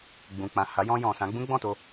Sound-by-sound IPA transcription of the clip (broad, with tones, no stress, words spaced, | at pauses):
ɡ͡bũ˨k͡pã˨ ha˨˦jɔ̃˧jɔ̃˨sã˨˦ ɡ͡bũ˦ɡ͡bɔ̃˦˨to˧